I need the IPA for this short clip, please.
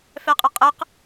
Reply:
f ɛ qʼ ɯ qʼ ə q

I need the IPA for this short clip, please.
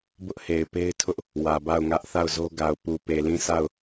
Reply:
b ʊ˦ ʔ h e˨ ɪ̯ p e˦ ɪ̯ tʰ ʊ˦ ʔ | w ä˨ b a˦˨ ʊ̯ ŋ ä˦ ʔ θ a˦˨ ʊ̯ z o˦ ɡ a˨ ʊ̯ p u˨ p e˨ l ĩ˦˨ s a˦˨ ʊ̯

